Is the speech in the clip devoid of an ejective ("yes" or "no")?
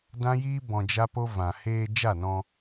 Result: yes